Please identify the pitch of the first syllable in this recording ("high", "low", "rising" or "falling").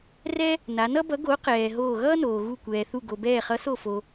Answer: high